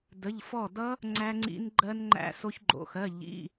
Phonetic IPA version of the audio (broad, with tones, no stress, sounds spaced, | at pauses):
d ə˧˥˧ ʎ f ɔ˥˨ d ʌ˦˥ | ŋ͡ǀ æ˦˥ ŋ͡ǀ ḭ˦˥ n ɡ͡ǃ ɜ˦˥ n ŋ͡ǃ æ̰˦˥ s o˦˥ ç ɡ͡ǃ o̰˧˥˧ x ɜ˧˥˧ ʎ ḭ˧˥˧